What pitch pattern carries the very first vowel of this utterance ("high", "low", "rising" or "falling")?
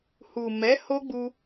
low